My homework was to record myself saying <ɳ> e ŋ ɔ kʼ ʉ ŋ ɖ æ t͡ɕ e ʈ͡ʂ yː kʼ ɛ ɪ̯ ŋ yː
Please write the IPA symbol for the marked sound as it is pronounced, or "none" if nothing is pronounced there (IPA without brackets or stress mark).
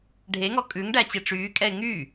ɖʱ